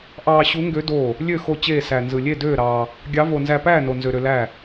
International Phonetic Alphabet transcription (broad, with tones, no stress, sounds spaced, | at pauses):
ʔ ɑː˧ ɕ u˧˥ ŋ ɡ ø˧˥ d oː˥˨ | lʲ ø˥˨ x o˧ t͡ɕ eː˥˨ s æ˧ n z ɯ˧ lʲ e˥˨ d øː˥˨ ɾ ɑː˧ | ɡʲ ɑ˧˥ v o˧ n z æ˧ p æː˥˨ n o˧ n z ø˧ ɾ ø˧ l æ˥˨